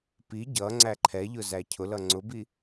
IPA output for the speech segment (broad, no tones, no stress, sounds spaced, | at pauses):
p i ɟ ʌ ŋ͡ǀ æ ǃʰ ɛ ʎ ʊ z æ cʰ ʊ l ʌ ŋ͡ǀ ʊ b i